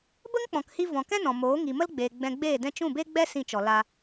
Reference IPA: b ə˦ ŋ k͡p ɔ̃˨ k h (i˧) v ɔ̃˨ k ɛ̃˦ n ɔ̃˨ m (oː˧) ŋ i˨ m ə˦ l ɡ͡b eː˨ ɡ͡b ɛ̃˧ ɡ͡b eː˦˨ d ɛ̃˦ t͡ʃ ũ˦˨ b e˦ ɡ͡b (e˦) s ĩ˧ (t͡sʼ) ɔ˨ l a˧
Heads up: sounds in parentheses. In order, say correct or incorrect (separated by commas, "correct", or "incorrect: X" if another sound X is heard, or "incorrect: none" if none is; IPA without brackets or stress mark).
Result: correct, incorrect: oː˨˦, incorrect: ɛ˦, incorrect: t͡ʃ